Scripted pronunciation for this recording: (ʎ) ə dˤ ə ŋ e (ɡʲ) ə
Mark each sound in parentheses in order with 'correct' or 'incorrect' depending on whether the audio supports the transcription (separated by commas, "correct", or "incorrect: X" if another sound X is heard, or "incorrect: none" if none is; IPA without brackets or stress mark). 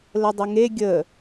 incorrect: l, correct